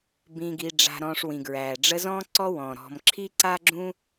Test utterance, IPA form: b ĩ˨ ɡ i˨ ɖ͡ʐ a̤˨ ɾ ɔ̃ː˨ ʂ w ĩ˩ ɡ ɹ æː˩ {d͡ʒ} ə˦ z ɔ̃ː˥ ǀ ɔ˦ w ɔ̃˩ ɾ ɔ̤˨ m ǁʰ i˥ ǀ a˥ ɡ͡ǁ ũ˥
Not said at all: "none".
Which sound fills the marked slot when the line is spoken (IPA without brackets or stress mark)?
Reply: ɖ͡ʐ